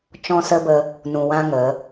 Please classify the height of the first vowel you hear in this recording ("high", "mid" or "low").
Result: mid